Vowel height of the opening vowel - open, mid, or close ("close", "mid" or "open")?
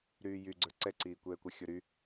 close